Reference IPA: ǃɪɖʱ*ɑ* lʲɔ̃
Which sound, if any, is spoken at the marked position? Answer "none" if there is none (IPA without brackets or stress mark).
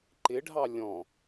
ɑ